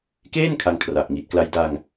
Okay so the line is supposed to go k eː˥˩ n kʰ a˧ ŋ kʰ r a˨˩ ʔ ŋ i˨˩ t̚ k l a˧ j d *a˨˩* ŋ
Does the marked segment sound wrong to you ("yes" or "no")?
yes